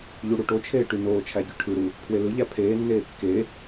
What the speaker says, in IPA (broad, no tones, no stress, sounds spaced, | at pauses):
ʎ u ɽ u ʈ o t͡ʃʰ eː ʈ y n oː t͡ʃʰ æ ɟ y ʈʰ ɯ ɾ u | pʰ w e l ɯ ʎ æ pʰ eː nː eː kː e